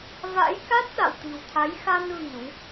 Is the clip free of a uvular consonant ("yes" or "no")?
yes